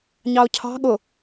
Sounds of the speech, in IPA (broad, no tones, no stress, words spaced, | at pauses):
ɲɑʊ̯cʰɑ̤ ɠʊ